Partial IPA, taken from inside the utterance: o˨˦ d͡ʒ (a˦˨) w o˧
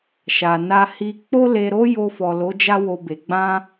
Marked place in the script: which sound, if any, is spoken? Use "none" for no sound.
a˦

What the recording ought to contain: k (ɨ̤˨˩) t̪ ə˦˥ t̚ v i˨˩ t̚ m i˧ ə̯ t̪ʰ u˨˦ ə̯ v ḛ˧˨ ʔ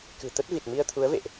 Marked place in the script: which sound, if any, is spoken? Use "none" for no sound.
ɨ̤˨˩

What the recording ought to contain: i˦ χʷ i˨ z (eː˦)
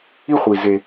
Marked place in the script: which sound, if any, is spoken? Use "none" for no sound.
e˦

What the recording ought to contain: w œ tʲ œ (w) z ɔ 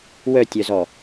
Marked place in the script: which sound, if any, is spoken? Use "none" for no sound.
none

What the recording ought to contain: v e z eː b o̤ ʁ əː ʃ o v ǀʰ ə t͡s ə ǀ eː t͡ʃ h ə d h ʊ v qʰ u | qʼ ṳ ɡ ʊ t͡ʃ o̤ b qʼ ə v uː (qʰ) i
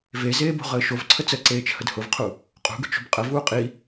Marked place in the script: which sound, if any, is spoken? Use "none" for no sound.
qʼ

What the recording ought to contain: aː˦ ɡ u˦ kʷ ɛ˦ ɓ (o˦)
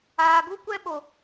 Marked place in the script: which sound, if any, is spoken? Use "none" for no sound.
o˦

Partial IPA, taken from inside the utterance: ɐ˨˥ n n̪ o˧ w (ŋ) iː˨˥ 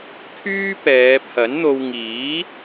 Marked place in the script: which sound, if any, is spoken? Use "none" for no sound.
ŋ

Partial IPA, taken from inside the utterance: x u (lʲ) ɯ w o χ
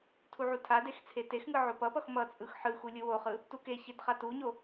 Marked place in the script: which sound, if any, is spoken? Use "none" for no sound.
lʲ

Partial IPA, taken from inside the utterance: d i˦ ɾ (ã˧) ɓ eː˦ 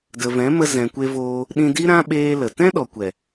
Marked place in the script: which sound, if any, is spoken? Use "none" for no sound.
ã˦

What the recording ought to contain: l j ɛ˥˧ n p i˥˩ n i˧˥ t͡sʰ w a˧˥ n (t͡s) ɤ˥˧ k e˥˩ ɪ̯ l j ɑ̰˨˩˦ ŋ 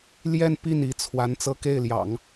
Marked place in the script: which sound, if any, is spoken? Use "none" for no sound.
t͡s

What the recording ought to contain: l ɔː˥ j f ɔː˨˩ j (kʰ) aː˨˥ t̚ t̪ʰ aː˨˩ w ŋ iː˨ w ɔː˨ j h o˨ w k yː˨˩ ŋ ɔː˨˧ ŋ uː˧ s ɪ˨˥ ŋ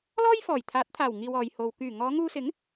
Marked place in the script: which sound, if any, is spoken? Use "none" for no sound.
t̪ʰ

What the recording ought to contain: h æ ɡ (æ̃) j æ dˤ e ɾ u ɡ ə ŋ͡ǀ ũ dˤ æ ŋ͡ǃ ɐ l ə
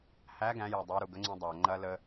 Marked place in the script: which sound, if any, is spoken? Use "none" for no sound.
æ̃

